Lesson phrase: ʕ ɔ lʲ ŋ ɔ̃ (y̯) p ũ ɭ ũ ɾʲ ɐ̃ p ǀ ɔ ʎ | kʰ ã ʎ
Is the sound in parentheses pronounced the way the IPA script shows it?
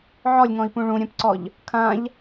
no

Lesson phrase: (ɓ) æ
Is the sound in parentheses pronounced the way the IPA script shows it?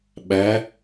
yes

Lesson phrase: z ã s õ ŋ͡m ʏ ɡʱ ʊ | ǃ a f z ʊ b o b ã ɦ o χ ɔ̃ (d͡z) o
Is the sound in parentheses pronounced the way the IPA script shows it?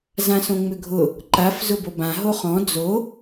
yes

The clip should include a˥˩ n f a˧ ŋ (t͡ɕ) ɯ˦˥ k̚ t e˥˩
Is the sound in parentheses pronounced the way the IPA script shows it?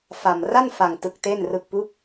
no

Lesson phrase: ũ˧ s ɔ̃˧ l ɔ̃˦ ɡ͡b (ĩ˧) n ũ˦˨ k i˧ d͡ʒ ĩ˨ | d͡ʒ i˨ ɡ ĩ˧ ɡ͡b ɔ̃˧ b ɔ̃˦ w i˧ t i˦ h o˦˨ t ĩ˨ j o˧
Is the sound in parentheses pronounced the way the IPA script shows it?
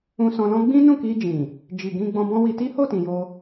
no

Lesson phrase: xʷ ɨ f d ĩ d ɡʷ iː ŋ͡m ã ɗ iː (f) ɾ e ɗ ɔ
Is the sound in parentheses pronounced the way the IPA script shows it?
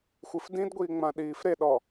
yes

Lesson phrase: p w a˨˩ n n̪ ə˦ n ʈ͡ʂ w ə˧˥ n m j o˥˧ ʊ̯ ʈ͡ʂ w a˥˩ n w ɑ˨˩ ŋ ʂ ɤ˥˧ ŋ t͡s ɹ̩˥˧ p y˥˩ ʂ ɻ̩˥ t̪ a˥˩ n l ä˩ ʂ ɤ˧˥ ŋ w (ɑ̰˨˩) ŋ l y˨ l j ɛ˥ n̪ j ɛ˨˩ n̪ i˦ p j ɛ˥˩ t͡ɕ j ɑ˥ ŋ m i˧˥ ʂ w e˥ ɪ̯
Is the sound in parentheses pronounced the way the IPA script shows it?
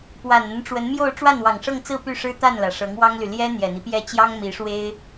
no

